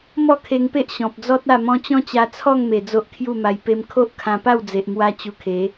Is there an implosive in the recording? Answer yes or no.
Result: no